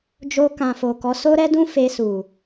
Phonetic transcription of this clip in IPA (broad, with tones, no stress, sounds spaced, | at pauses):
d͡ʒ o˧ k ã˨ f o˨ k ɔ˨˦ s o˧ ɾ ɛ˧ d ũ˧ f e˧ s u˨